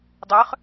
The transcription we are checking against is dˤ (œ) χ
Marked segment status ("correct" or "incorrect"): correct